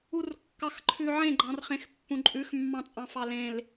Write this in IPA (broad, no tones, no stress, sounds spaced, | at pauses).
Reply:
u r kː ɑ x ǃʰ ʉ ʕ ẽ ɡ͡ǃ ɑ̃ r χ ẽ x pː ũ ǃʼ ʉ x mː ɑ̃ t͡sʼ ɑ̃ f ɑ l ẽ l